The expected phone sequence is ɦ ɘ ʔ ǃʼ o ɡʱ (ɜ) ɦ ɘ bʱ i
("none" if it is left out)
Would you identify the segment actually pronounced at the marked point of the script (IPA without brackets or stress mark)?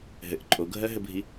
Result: ɜ